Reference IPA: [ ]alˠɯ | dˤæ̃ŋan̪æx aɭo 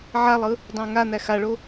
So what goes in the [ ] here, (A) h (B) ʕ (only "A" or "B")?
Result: B